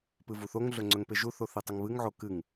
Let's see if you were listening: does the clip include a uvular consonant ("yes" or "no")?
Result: no